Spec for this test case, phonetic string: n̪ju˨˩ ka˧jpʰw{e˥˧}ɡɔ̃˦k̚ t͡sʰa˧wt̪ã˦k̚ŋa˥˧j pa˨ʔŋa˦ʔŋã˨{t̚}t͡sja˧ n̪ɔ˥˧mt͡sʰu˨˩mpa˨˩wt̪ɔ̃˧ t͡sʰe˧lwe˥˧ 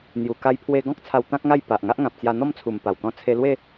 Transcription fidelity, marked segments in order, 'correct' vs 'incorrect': incorrect: e˧, incorrect: p̚

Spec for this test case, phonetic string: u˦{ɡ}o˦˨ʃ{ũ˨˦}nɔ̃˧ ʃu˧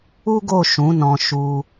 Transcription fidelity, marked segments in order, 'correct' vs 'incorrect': correct, correct

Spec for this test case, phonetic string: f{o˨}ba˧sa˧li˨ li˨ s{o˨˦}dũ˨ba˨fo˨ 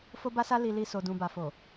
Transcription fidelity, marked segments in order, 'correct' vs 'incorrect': incorrect: o˧, incorrect: o˨

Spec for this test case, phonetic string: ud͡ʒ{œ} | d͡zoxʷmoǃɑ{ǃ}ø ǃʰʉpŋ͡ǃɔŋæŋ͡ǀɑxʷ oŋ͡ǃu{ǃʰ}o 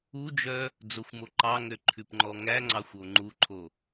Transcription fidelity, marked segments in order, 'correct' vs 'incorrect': correct, incorrect: ŋ, correct

